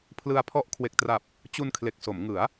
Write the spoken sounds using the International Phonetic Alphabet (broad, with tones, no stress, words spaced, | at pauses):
pʰlɯ˧a̯pʰɔ˦˥ʔ kʰwe˨˩k̚tra˨˩p̚ | t͡ɕu˧nkʰle˨˩k̚so˩˦mŋɯ˩˦a̯